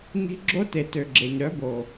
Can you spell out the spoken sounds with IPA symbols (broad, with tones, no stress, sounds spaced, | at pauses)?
n i̤˧ ɡ͡ǁ o˦ t e˨ t ø˨ ɡ͡ǁ e˨ ɲ ɾ œ˨˦ b o˨